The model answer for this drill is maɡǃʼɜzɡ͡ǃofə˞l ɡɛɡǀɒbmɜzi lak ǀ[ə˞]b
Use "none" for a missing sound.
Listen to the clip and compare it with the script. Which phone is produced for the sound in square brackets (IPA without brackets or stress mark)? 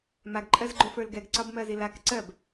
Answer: ɜ